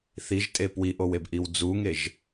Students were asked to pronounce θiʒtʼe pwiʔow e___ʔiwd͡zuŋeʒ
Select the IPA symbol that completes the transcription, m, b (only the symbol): b